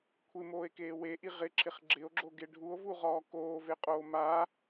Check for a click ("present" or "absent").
present